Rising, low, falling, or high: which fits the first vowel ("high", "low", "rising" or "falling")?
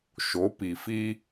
rising